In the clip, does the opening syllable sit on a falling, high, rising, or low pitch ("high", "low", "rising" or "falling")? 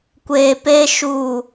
low